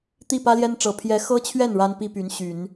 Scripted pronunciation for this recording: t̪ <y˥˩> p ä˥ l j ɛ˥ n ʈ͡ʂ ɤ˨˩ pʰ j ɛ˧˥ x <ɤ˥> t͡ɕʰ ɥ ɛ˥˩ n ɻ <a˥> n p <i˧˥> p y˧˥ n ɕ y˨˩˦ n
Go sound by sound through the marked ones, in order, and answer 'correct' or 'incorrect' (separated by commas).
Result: incorrect, correct, correct, incorrect